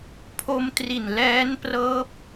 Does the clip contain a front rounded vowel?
no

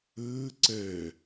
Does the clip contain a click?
yes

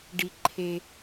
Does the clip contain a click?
yes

